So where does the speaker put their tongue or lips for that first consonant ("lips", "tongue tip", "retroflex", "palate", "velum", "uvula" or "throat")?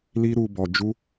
tongue tip